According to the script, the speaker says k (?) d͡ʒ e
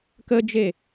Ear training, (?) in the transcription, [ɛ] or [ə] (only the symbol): ə